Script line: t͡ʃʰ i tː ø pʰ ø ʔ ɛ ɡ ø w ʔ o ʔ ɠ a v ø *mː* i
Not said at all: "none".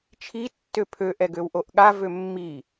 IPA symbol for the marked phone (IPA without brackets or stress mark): mː